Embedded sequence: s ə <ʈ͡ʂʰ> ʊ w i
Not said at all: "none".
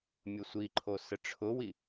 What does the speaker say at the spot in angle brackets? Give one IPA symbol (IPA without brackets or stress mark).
ʈ͡ʂʰ